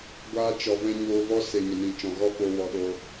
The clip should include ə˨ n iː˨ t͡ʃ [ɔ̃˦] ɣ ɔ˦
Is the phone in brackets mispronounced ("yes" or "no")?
yes